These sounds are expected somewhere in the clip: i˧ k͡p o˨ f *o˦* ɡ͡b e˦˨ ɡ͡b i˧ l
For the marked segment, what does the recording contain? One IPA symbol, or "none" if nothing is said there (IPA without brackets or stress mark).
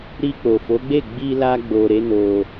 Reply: o˨˦